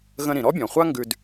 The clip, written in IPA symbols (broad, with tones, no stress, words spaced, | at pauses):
ɣə̃˧ ɾĩ˩ɾɔ˥bʲɔ̃˩χʷa˥ ŋɡʉ˧d